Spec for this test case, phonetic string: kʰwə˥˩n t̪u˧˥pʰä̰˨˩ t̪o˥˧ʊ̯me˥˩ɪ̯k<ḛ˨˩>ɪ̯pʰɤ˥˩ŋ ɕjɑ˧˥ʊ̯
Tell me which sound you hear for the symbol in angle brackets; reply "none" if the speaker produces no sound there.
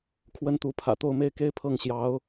e˥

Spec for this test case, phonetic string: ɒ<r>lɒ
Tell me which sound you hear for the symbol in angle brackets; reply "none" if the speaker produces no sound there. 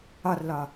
r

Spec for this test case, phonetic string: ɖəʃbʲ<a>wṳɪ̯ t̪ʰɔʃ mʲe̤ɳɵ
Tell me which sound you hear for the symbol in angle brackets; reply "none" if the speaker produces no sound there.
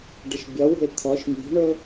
ʌ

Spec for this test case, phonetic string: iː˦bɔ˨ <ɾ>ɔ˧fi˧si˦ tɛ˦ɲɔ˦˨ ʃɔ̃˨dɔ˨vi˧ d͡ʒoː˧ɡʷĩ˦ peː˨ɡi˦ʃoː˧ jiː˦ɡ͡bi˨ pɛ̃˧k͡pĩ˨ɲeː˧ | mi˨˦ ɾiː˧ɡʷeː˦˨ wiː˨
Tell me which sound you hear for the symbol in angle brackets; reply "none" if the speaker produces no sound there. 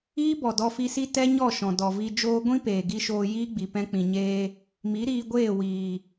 d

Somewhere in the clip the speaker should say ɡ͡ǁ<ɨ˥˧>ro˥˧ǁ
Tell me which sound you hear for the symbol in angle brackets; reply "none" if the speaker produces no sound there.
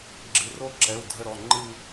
ɨ˩˧˩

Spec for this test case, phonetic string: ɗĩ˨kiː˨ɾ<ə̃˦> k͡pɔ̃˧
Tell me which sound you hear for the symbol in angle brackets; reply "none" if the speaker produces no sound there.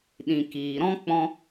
ɔ̃˦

